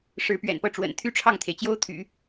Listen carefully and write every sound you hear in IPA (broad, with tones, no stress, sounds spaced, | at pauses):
ʂ ɻ̩˧˥ p ɥ ɛ̰˨˩ n p ɤ˥˩ ʈ͡ʂ w ə̰˨˩ n t̪ʰ y˥ ʈ͡ʂʰ ɑ˥˩ ŋ t̪ʰ e˩ ɪ̯ t͡ɕ j o˥ ʊ̯ t̪ʰ y̰˨˩˦